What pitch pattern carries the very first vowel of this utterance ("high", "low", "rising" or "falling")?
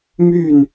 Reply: falling